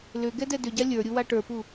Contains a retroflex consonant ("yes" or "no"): yes